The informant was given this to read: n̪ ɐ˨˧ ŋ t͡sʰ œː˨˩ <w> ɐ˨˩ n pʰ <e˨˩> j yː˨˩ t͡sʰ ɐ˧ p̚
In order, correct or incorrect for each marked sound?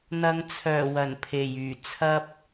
correct, correct

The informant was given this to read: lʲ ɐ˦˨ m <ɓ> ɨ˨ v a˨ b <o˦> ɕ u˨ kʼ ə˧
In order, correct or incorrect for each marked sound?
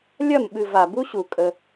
correct, incorrect

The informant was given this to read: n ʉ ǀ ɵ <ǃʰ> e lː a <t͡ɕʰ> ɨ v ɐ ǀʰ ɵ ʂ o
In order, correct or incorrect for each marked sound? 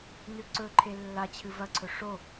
correct, correct

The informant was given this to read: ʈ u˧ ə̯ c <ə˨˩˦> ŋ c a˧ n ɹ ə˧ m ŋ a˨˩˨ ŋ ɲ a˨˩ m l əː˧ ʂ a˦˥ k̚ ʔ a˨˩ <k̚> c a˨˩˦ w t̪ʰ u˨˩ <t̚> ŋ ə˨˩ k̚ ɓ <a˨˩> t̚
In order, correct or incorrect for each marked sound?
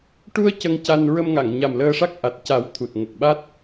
incorrect, incorrect, correct, incorrect

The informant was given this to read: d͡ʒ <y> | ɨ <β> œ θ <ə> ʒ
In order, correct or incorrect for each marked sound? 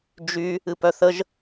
correct, incorrect, correct

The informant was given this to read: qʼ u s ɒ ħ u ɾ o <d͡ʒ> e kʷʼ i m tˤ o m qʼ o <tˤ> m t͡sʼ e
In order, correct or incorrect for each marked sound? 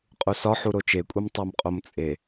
incorrect, incorrect

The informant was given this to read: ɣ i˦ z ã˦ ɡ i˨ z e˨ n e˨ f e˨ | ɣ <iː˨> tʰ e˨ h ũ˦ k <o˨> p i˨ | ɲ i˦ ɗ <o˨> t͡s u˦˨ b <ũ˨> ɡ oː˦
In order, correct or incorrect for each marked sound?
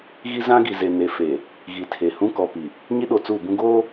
incorrect, incorrect, correct, incorrect

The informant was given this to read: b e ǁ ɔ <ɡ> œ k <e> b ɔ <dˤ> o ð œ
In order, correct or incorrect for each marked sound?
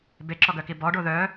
correct, incorrect, incorrect

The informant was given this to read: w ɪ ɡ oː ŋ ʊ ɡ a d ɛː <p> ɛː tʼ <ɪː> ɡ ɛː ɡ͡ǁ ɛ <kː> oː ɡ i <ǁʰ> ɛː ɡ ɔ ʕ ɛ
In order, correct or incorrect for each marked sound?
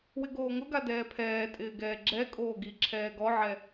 incorrect, correct, incorrect, correct

